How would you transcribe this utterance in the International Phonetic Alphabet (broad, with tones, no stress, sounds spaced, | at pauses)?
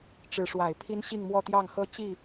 ʈ͡ʂ ɻ̩˧˥ ʂ w a˨˩ ɪ̯ pʰ i˥ n ɕ i˥˧ ŋ m w ɔ˥˧ t̪ j ɑ˥˩ ŋ x ɤ˥ t͡ɕ i˥˩